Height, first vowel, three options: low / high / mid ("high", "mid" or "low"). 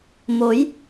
mid